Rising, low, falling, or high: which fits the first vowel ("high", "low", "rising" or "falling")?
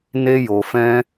high